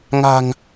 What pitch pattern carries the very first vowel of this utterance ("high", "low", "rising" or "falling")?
low